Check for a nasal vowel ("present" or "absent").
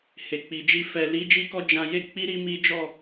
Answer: present